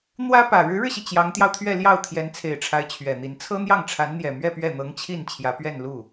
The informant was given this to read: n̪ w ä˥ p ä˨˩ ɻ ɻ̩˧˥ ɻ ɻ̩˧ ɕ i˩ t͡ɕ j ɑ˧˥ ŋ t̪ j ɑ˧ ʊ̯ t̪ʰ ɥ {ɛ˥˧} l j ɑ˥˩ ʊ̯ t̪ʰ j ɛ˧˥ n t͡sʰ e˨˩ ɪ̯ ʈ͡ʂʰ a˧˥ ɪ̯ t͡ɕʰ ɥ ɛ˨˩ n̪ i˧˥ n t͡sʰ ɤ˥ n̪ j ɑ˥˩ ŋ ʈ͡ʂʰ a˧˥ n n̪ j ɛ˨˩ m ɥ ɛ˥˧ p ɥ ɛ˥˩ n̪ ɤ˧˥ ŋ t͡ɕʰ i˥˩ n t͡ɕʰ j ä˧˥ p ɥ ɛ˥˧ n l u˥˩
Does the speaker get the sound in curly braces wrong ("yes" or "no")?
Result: no